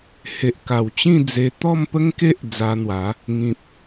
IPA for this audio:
h e˨ ʔ k a˨˩ w t͡ɕ ĩ˥˧ d͡z e˧ t̪ ɔ˥˧ m p ə˦ ŋ k e˦ ʔ d͡z a˧ n̪ w a˨˦ | ŋ ĩ˨ p̚

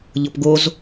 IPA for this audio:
ʎ ɤ p ɡ o z

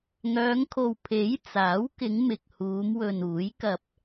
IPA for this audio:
ŋ œː˨˧ ŋ kʰ o˨ w pʰ e˨˥ j t͡s aː˨˥ w k ɪ˨˧ ŋ m ɪ˨ k̚ h uː˨˧ m w ɵ˨ n uː˨˥ j k ɐ˧ p̚

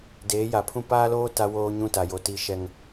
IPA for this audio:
d eː˨˦ j a˨ pʰ ũ˦ p aː˦ l oː˦ t a˦ w oː˦ ɲ ũ˦ t a˨ j o˨ t iː˦ ʃ ɛ˦ ŋ

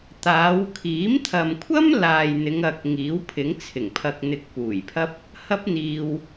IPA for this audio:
t̪ aː˨˧ w kʰ iː˨˥ m t̪ʰ ɐ˨ m kʷʰ ɐ˥ m l aː˨ j n̪ ɪ˨˧ ŋ ɐ˨ k̚ ŋ iː˨˥ w pʰ ɪ˨˥ ŋ t͡sʰ ɪ˨˩ ŋ pʰ ɐ˨ k̚ n̪ ɪ˨ k̚ p uː˨˩ j pʰ ɐ˥ p̚ | h ɐ˥ p̚ n̪ iː˧ w

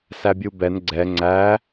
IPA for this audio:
s æ bʲ u b ɛ n ɡ͡ǀ ɛ ŋ͡ǀ æ

